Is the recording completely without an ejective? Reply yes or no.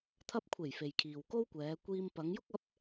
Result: yes